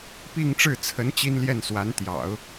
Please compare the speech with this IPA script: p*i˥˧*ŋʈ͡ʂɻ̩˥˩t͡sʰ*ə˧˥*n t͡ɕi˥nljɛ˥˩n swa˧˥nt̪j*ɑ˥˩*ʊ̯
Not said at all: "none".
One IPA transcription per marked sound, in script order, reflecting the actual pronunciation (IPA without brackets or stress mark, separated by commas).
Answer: i˥˧, ə˧˥, ɑ̰˨˩˦